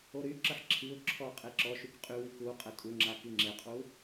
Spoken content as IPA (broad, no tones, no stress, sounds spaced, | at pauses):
o ɾ y ǁ ə ħ ǁʰ i ʊ̯ ǁʰ ɔ qʼ e ǁ ɔ ʃ y k qʼ y w i k u qʼ ə tʼ u ŋ͡ǁ a k i ŋ͡ǁ e qʼ u